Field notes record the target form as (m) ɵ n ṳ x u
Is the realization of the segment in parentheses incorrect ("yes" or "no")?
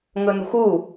yes